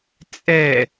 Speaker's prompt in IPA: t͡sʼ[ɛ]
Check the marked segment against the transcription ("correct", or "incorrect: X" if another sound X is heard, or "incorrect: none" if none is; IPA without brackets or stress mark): correct